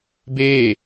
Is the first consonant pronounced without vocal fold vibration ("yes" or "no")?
no